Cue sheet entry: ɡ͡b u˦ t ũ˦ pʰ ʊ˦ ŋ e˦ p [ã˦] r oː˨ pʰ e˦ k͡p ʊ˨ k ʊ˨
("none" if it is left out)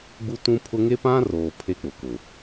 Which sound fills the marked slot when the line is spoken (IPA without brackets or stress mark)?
ã˦